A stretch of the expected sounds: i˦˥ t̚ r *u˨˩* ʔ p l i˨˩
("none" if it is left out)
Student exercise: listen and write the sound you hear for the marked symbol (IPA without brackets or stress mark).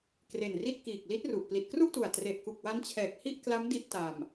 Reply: u˨˩